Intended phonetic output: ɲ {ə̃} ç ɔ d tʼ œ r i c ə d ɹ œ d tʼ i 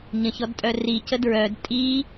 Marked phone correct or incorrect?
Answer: correct